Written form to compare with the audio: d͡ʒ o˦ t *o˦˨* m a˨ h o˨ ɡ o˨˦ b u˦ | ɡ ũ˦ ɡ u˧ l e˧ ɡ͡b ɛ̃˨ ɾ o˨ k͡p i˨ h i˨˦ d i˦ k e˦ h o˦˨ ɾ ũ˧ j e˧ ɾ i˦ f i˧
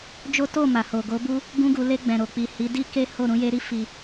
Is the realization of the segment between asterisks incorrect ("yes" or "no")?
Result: no